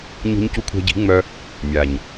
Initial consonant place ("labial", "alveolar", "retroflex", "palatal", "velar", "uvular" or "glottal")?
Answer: palatal